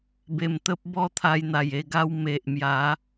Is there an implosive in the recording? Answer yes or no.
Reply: no